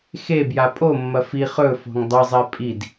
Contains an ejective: yes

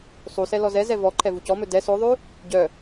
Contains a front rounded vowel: yes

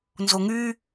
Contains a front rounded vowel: yes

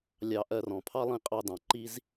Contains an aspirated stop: yes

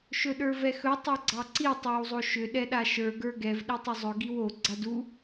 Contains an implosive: yes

